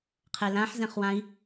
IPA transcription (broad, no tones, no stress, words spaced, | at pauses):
qʰɛlãħ zɛ̃χwãi̯